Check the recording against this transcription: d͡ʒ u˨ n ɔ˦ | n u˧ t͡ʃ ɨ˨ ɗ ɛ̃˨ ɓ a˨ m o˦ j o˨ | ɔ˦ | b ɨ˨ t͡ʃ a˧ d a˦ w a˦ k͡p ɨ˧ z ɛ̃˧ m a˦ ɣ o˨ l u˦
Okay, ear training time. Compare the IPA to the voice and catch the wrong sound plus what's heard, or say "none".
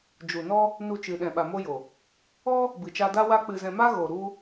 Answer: l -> ɾ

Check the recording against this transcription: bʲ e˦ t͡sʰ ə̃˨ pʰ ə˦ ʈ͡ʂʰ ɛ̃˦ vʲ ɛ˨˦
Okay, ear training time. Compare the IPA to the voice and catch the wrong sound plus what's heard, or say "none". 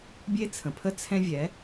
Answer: ʈ͡ʂʰ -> t͡sʰ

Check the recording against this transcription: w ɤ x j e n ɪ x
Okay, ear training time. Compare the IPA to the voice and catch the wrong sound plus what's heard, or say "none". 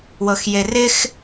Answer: n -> r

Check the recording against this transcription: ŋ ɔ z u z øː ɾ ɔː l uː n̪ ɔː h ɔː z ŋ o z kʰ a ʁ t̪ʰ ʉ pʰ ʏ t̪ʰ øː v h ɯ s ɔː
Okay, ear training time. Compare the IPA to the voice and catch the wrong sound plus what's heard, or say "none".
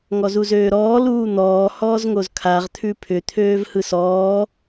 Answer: none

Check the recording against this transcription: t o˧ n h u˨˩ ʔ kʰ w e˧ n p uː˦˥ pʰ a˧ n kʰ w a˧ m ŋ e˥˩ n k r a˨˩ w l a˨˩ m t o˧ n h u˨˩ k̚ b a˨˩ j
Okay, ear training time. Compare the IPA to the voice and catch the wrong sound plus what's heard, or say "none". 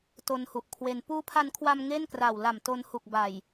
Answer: none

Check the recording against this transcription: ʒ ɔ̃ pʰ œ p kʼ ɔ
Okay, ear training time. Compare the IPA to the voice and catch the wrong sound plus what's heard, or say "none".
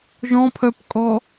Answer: none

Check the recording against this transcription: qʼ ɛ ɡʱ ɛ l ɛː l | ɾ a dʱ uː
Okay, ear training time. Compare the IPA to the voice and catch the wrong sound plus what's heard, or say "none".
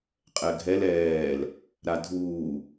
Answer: none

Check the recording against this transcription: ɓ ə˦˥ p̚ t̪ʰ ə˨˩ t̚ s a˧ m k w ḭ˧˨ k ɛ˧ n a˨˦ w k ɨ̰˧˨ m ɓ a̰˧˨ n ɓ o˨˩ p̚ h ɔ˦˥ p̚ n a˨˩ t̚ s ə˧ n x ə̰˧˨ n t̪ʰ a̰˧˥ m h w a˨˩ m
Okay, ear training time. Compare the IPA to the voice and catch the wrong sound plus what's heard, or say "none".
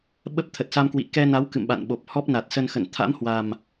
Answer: none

